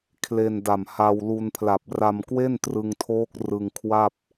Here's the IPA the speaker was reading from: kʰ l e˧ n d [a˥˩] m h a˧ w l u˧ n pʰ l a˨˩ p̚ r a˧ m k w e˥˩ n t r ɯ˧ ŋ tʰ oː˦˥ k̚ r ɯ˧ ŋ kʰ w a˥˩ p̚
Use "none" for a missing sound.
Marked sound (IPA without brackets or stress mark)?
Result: a˨˩